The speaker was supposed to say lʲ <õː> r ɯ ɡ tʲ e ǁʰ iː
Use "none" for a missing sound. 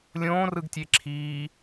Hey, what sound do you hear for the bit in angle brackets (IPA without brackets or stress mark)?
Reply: õː